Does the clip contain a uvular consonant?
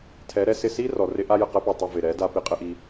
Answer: yes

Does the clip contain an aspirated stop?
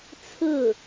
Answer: yes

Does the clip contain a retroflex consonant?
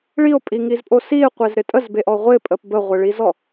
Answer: yes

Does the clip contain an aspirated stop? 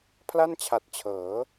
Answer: yes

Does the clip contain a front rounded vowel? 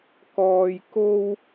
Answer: no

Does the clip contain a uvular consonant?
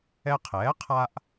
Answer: yes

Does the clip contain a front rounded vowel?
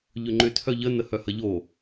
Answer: yes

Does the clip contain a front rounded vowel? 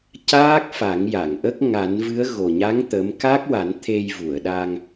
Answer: no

